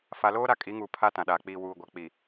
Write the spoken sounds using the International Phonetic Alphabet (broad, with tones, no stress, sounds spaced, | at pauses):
f a˨ l oː˦ ɾ a˦ kʼ i˨˦ ŋ uː˨ pʰ a˦ t ã˨ ɗ aː˨ k͡p iː˨ w uː˨ ɡʷ a˨ k͡p i˨